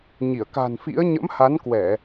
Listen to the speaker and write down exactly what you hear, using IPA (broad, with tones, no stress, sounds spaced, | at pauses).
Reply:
ɲ i˧˩ ə̯ k a̤˨˩ n f ḭ˧˥ ə̯ ɲ ə̰˧˥ m h a˨˦ n k w ɛ˧˩˨